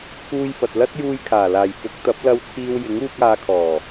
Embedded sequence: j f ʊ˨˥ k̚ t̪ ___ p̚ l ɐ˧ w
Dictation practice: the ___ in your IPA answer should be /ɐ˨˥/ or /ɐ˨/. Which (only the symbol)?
ɐ˨˥